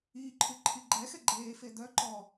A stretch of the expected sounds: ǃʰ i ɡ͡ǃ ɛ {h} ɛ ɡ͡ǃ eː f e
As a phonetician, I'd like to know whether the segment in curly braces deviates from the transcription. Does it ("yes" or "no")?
yes